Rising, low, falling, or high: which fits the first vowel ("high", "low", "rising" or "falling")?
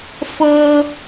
high